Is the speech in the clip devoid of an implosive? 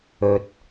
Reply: yes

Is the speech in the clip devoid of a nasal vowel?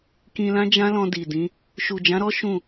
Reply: no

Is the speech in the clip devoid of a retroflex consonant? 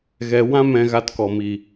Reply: yes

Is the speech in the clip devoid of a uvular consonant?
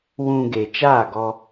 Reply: yes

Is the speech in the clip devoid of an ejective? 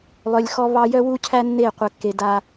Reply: yes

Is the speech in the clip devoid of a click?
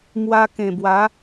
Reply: yes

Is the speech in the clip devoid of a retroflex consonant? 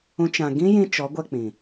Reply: yes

